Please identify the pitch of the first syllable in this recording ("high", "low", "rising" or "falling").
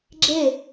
falling